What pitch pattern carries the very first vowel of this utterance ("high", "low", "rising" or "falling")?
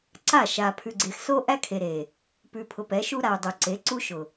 falling